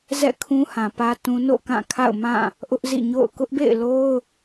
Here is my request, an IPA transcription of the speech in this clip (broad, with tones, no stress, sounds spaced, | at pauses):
z ɛ̰˦˨ kʰ ũ˦ h ã˨ p ä˦ t ũ˦ n o̰˦˨ k ã˦˨ kʰ a̰˦˨ ʊ̯ m ã˦˨ | ʔ ʊ˦ ʔ z ḭ˦˨ ɲ o̰˦˨ ʊ̯ k ʊ˦ ʔ b ḛ˦˨ ɪ̯ l o˦ ʊ̯